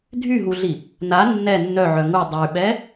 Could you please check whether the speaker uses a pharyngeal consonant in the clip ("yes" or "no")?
yes